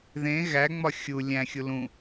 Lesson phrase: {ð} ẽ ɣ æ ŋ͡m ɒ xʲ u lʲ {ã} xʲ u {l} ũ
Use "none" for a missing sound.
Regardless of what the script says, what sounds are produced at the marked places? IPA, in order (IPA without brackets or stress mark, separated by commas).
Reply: ð, æ̃, l